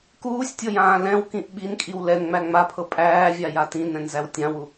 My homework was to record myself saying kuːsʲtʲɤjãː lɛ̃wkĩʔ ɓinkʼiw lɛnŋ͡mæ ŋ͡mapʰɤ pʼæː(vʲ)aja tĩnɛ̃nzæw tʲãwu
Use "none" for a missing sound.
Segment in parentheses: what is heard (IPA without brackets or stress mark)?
vʲ